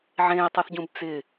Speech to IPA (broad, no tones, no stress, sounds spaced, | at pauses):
ʕ ẽː i̯ tˤ ʌ θ ɟ ũ b t͡s ɪ